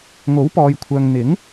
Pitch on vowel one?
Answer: rising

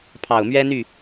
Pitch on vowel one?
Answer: low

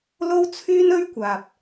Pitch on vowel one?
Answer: high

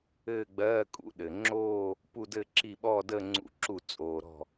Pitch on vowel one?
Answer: falling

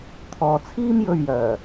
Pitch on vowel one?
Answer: low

